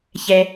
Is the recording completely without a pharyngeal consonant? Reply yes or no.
yes